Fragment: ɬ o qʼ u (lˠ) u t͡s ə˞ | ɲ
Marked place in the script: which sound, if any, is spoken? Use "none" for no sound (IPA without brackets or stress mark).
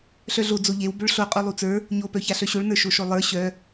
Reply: lˠ